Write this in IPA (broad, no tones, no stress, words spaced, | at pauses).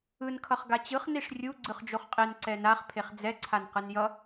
ɯn kʰʌχɡat͡ɕɯχ niʂrʲu ɡ͡ǀɯχd͡ʒoχqʼen ǀɛnaχ pʰeχd͡zɛ ǀʰanqɯnjʌ